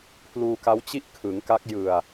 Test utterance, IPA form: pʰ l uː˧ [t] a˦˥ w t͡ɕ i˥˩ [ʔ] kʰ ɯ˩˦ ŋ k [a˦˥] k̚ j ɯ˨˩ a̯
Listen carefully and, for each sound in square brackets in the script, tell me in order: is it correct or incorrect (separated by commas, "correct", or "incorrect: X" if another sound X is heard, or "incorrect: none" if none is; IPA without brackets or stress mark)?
incorrect: k, correct, correct